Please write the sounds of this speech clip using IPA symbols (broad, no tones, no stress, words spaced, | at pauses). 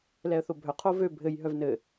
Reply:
lɛə̯θobʱœ qʰovø bʱɘj ɦœvnɘ